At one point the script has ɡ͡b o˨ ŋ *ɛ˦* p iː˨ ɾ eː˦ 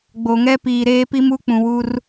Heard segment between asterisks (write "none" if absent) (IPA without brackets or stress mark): ɛ˦